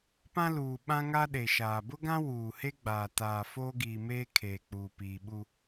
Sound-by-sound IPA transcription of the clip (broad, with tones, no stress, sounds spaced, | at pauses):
p ã˦ l uː˨ ɓ ã˦ ŋ a˦ ɗ e˨ ʃ aː˨ b ʊ˦ ɡ ã˦ w uː˨ h e˦ ɡ͡b aː˨ t aː˨ f oː˦ ɡ iː˨ m eː˦ kʰ eː˨ k͡p uː˨ p iː˨ ɓ u˦